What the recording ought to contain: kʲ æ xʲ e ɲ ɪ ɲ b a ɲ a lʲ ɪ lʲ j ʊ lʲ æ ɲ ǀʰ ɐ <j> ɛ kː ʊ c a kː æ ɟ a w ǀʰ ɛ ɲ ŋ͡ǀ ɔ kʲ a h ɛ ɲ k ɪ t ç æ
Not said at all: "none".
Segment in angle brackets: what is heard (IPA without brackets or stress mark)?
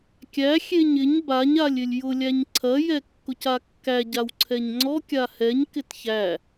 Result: j